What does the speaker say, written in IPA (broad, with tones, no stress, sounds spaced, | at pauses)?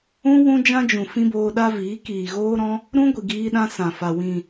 ũ˦ w ũ˦ d͡ʒ ã˦ d͡ʒ ũ˨ f ĩ˦ b oː˧ ɗ a˦ v iː˨˦ k iː˨ ɣ oː˦ ɾ ɔ̃˦ | ɾ ũ˦ ɡʷ i˨ ɡ iː˧ ɗ ã˧ s ã˨ f a˨ w ĩ˨